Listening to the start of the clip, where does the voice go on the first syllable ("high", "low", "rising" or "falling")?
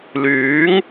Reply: rising